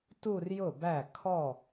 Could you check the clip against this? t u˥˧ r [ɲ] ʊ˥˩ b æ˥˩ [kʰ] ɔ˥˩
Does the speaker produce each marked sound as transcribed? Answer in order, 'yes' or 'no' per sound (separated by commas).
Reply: no, yes